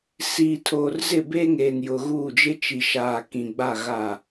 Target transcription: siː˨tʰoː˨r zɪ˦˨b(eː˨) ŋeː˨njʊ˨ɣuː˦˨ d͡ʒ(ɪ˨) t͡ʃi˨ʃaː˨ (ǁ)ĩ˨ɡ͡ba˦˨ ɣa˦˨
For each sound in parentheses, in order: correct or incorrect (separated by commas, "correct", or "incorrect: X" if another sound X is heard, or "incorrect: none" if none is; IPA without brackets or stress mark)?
incorrect: eː˦, incorrect: ɪ˦, incorrect: k